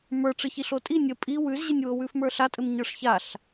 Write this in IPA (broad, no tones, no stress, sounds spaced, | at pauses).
m ə˞ ʈ͡ʂ ɘ ç i ɬ o tʼ i nʲ ə pʼ i w ʉ z ʑ ɘ nʲ w o w ʉ f m ə˞ ɬ a tʼ ɘ m ɲ ə˞ ʂ ç a ɬ